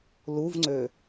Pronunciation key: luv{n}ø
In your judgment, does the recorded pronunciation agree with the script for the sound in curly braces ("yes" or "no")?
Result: no